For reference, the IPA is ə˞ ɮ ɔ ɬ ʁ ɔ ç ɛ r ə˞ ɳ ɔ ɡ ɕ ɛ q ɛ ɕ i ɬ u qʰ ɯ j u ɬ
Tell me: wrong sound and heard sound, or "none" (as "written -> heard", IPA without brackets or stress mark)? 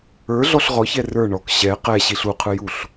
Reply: ɡ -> k